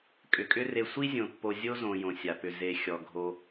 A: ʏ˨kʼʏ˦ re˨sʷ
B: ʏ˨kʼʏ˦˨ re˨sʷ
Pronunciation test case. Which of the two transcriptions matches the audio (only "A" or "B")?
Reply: A